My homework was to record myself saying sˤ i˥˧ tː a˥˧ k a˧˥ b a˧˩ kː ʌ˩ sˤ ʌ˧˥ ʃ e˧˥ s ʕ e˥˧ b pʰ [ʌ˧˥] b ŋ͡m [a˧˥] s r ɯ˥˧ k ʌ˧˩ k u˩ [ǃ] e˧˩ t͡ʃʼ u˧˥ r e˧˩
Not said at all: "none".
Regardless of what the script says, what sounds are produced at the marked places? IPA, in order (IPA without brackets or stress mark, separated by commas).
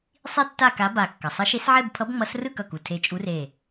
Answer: ʌ˧˥, ʌ˧˥, tʰ